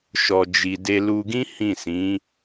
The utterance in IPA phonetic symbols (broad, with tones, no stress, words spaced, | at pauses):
ʃɔ˨d͡ʒi˨ de˧lu˧ɡĩ˦ hĩ˦˨sĩ˨˦